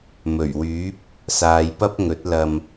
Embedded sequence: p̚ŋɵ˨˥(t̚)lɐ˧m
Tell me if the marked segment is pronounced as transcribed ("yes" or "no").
yes